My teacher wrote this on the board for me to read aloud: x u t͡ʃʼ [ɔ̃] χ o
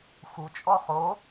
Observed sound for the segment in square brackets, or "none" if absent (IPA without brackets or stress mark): ɔ